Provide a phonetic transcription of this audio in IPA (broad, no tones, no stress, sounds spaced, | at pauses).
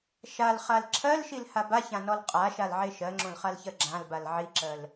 ʃ a l χ a l ǁʰ ɜ l ʃ i l h a b a ç ã n ɔ l qʼ a ʃ a l ʕ e ʃ ɜ ŋ͡ǁ õ l χ a l ç ɜ ɡ͡ǁ ã l b a l ʕ i ǁ ɜ l